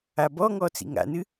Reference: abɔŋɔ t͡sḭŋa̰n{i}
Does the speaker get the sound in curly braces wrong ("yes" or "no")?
yes